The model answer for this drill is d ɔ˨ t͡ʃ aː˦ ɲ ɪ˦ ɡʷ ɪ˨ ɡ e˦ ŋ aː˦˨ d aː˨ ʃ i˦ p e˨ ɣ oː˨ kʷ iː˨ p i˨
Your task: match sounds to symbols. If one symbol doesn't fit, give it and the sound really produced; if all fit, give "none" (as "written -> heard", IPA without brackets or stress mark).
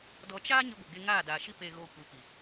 iː˨ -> i˨